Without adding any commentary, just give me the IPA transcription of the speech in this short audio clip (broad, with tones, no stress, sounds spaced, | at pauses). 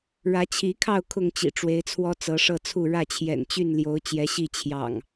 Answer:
ɻ ä˨˦ t͡ɕʰ i˨˦ kʰ ɑ˥˨ ʊ̯ kʰ ʊ˥˨ ŋ t͡ɕ ḭ˨˩ ʈ͡ʂ w e˨˦ ɪ̯ t͡sʰ w ɔ˦ t͡s ɤ˨˦ ʂ ɤ˥˨ t͡sʰ u˥˨ ɻ ä˥˨ t͡ɕʰ j ɛ̰˨˩ n t͡ɕ y˥˨ n l j o˨˦ ʊ̯ t͡ɕ j ɛ˨˦ ɕ i˥˨ t͡ɕʰ j ɑ̰˨˩ ŋ